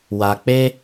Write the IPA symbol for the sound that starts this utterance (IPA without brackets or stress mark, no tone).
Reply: w